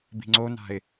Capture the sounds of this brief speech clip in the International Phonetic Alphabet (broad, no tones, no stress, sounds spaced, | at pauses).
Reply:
b i̤ ŋ͡ǀ o n a̤ ɪ̯